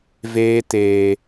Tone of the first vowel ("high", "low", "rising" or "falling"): high